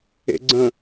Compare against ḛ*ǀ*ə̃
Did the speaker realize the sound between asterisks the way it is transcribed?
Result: no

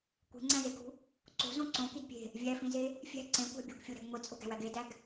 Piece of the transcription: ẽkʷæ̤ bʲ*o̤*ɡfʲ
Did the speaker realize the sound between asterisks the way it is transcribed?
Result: yes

